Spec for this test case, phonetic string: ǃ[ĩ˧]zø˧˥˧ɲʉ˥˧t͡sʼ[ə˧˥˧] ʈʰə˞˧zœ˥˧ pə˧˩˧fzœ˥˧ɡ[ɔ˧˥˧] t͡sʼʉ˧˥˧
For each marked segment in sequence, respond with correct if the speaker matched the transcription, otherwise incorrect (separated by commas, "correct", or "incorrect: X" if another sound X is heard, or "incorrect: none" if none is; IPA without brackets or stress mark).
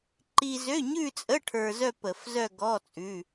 incorrect: i˧, correct, correct